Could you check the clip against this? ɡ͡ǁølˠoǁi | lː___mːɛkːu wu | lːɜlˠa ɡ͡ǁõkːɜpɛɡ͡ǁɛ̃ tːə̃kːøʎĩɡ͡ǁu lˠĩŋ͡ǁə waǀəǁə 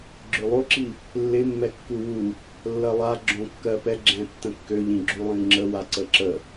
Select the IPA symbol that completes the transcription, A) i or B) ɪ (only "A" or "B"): B